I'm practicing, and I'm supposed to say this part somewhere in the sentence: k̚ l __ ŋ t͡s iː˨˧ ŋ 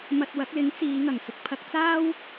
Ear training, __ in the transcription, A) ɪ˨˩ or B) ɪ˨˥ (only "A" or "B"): B